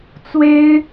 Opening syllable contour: high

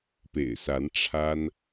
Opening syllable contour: low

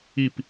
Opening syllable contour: falling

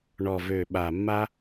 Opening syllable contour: low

